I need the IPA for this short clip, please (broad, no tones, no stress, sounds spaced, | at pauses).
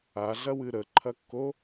a ɮ ɐ w ɨ ɾ ə ǃʰ ɐ kː o